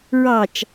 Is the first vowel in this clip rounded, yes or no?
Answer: no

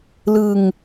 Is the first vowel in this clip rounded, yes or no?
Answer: no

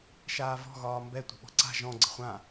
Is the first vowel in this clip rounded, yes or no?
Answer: no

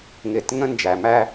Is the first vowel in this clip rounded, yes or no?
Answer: no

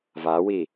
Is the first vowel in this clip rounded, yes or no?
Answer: no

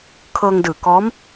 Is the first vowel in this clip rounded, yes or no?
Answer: no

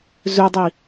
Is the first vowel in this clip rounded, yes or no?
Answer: yes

